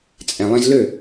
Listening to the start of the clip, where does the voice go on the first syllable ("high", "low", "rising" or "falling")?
low